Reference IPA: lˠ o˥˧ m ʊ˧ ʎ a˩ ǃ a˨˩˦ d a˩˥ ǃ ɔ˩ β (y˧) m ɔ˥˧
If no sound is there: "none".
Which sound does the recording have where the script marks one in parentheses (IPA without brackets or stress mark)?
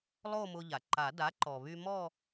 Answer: y˧